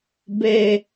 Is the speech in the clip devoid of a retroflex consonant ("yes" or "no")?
yes